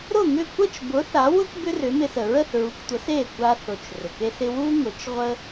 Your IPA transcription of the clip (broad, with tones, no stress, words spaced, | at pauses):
ɾʊ˥˩ŋʏ˥˩ kʷə˥˩t͡ʃbʊ˩˥ θa˩˥wʊ˥k bʏ˥rʏ˩˥mɪ˧sə˩ ɹə˥˩θɹu˩˥ktʷə˩˥s e˥˩ kʷa˧ θʊ˩t͡ʃ rʏ˩ke˥sɪ˥ wu˥ ŋʊ˩˥t͡ʃ ʁʷə˥